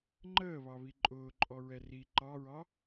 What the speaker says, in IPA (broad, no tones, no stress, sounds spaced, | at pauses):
ŋ͡ǃ əː β ɑ β i ǃʼ ʊː ǃʼ ɔ ɹ ɛ r i ǃ ɑ ɹ ɑ